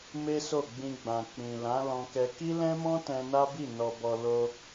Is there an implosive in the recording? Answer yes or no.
no